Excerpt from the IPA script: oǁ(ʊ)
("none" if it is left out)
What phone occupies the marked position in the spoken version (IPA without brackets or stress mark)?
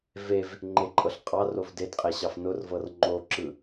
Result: ɯ